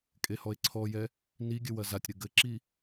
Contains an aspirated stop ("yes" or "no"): yes